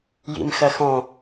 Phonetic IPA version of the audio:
jḭmxɐxɔ̃

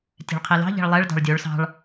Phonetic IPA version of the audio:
tʲɛ̤ɭqʰelɑ̤ʎɛ̤ɭ lˠɛɭdɑ̤ɭ dʲoɭ sɑ̤ɭ

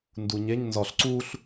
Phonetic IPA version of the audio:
nduɲeɲ nzɒɬ ǀuɬ

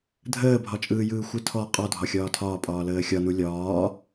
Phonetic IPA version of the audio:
dʱəːbʱɒt͡ʃʼɯːjɯː xʷɯtʰɔ qʼɔdʱɒ xʲɒːtʰɒːpʼɒː ləːxʲɒnu lʲɒː

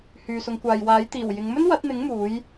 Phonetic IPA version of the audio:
hyː˨sʊ˨˧ŋkʷaː˨j waː˨˥jt̪iː˨˩wjɪ˨˧ŋ mɵ˥nwɐ˨˥t̚n̪ɪ˨˥ŋ muː˨˥j

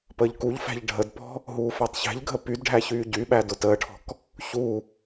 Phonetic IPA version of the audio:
pəːʎkuʎfæ̤ʎ ɖʱədpɔ̤ | ɦuːfætˤçæ̤ʎɡʱə pydɖʱæ çyːɟyɓæ dʊtəːʈʰɔ̤k | çu

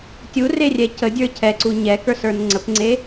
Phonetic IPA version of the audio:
tʲurerʲɛ cədʲə˞ cʰɛǀu ɲɛkə˞sə˞n ŋ͡ǀəpŋ͡ǀe

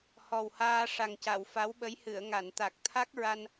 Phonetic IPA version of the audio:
hɔ˨˩whaː˧ ʂa˨˩ŋca˨˩˨wfa˧˥wɓə˧˥j hɨ˨˩˨ə̯ŋa˨˩˨nt̪a˨˩k̚ t̪ʰa˦˥k̚ɹa˧n

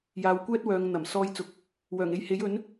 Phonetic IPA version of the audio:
jaː˨wkʷɛː˥t̚wœː˨˧ŋ n̪ɐ˨˩m sɔː˧jt͡sʊ˨k̚ | wœː˨˩ŋe˧jhe˨˥jɵ˨˥n

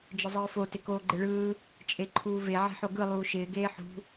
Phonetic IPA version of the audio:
d͡ʒɪzˤɯːfo tɪkoːɡ͡ǃɪɭɯː | t͡ʃʼeǃʰuːve ʕe̤ħoɡɯ lˠuːʃɪː ɡeːħṳ

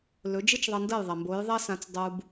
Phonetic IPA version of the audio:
lɵ˩˥d͡ʒɨ˥t͡ʃðˤɐ˧ndɐ˥˩j ðˤɐ˩mbo˩˥jðˤɐ˥sã˧t͡s dˤu˧b

